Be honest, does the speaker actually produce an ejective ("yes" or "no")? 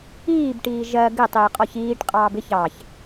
yes